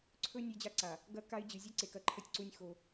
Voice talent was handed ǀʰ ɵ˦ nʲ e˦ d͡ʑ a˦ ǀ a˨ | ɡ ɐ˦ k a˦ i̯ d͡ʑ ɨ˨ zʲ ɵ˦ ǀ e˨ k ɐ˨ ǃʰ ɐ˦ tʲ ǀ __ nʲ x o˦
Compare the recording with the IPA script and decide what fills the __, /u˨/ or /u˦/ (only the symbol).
u˦